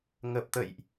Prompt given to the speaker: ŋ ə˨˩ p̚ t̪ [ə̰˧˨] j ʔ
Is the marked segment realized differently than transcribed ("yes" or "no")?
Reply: no